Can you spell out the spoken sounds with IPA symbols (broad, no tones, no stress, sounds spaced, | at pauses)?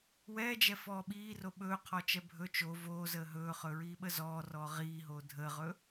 w ɛː d͡ʒ ɛ f ɔː ɓ iː r o ɓ ɵː qʰ ɔ t͡ʃ ɛ bʱ ɵ t͡ʃ o v oː z əː ɦ ɵː χ ɵ ɹ iː ɓ ə z ɔː r ɔː ʁ iː ɦ oː dʱ əː ʁ ɵ